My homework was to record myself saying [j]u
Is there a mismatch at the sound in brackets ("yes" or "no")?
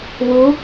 yes